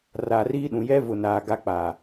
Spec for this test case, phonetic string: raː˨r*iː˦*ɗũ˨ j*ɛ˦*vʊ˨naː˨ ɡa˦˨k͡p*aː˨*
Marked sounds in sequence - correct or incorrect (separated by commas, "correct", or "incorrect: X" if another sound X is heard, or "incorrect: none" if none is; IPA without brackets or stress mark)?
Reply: correct, correct, correct